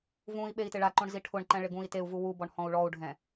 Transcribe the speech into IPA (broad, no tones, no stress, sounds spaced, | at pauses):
v ũ i̯ ɓ e i̯ t ɪ ɭ a ǃ õ ɳ z i ʈʰ ʊ ɳ ǃ ɛ̃ ɭ ɪ ɡ ũ i̯ t e u̯ v u w u b ɔ ɳ h ɔ̃ u̯ ɭ ɔ u̯ ɖʱ ɛ̃